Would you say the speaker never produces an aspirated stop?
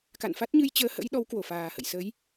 yes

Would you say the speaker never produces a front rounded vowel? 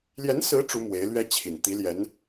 yes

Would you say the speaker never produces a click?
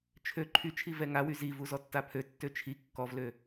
no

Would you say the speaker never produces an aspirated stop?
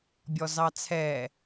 no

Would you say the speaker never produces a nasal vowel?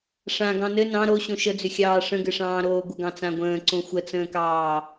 no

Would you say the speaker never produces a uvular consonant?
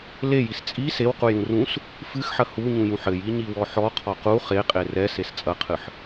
no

